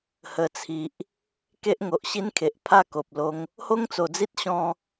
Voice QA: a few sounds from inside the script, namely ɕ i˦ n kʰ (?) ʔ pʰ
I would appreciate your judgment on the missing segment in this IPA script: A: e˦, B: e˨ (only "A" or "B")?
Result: B